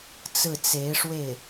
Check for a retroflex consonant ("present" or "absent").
present